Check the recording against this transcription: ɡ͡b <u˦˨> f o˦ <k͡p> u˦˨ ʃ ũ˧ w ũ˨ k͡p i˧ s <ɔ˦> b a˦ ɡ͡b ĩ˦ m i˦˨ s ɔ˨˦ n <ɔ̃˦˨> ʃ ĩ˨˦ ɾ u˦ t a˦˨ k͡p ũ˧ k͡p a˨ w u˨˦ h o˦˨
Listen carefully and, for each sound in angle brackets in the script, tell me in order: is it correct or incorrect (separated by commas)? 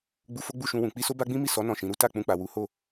incorrect, incorrect, incorrect, correct